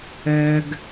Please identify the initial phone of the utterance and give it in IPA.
œː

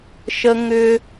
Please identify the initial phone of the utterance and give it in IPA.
ʃ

